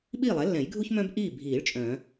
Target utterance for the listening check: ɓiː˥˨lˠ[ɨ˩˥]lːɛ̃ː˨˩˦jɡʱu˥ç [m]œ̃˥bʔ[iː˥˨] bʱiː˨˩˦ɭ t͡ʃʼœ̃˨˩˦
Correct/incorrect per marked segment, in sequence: incorrect: ɛ˩˥, correct, correct

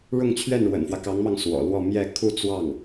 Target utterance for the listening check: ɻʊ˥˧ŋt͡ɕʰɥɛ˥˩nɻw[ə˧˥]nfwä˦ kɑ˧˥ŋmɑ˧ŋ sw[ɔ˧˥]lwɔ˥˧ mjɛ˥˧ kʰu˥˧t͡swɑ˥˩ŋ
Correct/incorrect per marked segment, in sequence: incorrect: ə̰˨˩, incorrect: ɔ̰˨˩

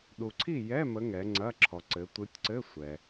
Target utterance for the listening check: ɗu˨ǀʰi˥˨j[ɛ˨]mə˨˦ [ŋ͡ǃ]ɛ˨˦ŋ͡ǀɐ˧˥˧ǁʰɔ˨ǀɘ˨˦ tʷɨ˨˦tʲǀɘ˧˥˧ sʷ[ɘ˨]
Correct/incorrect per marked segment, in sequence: incorrect: ɛ˧˥˧, incorrect: ŋ, incorrect: ɛ˨

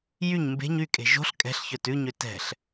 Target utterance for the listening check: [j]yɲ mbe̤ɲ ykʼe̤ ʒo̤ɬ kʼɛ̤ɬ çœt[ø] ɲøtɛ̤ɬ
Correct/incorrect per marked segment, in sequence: correct, incorrect: ʉ

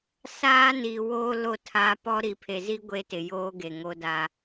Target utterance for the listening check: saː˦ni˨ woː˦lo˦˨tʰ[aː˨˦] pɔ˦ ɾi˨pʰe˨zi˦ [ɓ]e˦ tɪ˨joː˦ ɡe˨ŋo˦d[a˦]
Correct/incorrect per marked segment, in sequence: incorrect: aː˦, incorrect: ɡʷ, correct

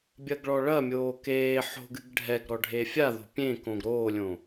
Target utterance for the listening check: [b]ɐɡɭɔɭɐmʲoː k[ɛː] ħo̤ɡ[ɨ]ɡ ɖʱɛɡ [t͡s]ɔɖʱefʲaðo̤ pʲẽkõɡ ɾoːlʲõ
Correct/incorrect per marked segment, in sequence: incorrect: bʲ, incorrect: eː, correct, incorrect: ɾ

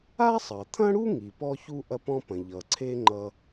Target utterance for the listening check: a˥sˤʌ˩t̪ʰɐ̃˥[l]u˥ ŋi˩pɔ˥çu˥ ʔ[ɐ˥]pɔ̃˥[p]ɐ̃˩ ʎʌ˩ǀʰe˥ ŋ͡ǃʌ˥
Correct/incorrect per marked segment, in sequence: incorrect: ɽ, correct, correct

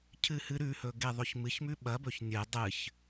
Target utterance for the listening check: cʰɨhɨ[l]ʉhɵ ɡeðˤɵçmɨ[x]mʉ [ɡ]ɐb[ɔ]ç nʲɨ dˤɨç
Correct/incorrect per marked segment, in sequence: incorrect: ɾ, incorrect: ç, incorrect: ɓ, incorrect: ɵ

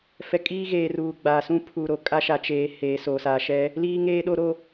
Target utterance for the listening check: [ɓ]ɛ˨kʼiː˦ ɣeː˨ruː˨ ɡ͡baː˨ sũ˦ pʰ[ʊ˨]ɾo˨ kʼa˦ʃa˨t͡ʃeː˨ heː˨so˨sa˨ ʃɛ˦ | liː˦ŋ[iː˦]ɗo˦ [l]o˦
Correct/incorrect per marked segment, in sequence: incorrect: f, incorrect: u˨, incorrect: eː˦, incorrect: ɾ

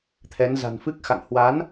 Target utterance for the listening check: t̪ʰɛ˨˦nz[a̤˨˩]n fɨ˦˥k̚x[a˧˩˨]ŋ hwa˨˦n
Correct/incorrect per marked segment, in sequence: correct, incorrect: a̰˧˨

